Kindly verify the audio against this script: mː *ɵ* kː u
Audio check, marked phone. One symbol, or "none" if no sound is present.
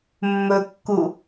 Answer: ɵ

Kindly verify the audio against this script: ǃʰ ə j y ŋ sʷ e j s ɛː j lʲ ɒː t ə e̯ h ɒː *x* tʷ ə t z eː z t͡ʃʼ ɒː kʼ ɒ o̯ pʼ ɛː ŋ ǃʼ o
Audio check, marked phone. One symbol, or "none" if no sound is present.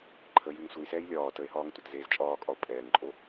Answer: ŋ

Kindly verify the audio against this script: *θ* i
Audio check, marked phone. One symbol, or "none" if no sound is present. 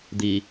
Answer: d̪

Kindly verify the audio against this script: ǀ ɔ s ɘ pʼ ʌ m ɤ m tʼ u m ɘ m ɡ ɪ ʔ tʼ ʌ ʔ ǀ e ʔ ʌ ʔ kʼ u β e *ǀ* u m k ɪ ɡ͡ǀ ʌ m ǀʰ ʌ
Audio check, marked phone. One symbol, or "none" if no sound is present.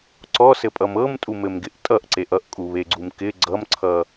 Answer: ɡ͡ǀ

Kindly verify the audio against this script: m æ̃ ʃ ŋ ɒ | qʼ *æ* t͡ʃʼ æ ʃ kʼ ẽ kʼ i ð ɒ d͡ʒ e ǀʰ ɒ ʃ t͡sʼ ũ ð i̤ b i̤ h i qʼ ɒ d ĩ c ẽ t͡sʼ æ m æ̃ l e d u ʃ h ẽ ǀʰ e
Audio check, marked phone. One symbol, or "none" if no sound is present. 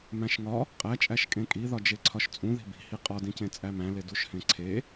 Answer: æ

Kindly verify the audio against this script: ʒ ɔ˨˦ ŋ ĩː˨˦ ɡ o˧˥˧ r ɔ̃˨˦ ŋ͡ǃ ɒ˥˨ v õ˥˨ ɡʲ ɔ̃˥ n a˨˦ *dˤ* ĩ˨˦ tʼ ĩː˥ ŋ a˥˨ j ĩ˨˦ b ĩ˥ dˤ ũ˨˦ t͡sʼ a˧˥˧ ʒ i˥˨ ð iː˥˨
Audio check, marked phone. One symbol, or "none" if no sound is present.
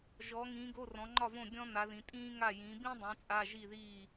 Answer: ð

